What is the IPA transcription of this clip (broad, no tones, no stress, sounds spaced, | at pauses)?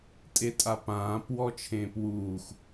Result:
tʼ e tʼ a p ãː p w ɔ t͡ʃʰ ẽː p w uː x